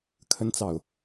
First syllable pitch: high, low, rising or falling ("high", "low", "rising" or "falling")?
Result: high